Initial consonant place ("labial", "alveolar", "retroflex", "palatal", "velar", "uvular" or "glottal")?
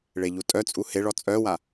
retroflex